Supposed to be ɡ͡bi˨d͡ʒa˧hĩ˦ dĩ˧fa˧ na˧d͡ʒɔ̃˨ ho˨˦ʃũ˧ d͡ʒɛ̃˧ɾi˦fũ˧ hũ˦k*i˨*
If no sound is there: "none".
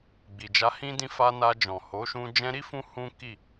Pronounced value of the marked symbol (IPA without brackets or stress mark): i˦˨